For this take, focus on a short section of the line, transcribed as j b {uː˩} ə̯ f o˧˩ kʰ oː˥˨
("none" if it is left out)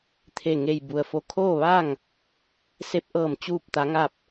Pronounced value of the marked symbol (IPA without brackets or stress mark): u˩